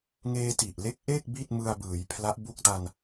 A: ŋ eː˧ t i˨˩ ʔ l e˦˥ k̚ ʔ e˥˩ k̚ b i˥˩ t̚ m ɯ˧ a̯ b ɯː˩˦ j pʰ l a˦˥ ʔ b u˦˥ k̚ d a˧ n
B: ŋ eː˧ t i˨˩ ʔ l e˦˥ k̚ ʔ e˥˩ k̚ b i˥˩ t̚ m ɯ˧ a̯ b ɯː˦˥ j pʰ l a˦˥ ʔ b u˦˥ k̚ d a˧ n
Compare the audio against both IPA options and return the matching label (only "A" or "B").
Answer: A